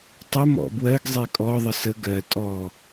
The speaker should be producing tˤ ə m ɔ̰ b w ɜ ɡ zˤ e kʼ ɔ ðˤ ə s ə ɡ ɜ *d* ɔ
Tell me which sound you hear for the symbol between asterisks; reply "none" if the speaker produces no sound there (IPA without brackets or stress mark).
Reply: tʼ